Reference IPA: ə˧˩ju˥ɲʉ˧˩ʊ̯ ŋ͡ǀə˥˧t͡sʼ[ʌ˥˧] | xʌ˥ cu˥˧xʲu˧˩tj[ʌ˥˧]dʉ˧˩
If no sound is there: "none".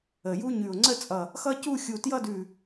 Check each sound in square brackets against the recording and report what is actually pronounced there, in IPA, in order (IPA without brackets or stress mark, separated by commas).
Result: ʌ˧˩, ʌ˥˧